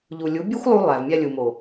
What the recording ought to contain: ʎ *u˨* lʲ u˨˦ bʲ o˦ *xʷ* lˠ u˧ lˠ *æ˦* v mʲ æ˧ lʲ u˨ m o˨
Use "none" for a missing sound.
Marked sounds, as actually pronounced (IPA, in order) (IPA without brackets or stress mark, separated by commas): u˨, xʷ, æ˨